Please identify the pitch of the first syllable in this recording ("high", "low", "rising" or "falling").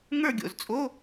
falling